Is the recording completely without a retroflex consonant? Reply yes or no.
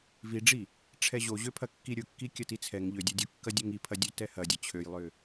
no